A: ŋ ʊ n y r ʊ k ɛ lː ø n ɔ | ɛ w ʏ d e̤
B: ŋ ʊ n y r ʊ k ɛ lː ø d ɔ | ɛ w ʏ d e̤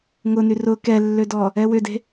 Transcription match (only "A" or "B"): B